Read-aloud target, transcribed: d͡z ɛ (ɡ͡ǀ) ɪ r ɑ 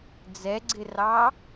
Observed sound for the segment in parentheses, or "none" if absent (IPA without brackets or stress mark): ɡ͡ǀ